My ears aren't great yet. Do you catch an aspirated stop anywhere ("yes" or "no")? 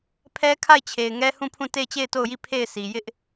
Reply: yes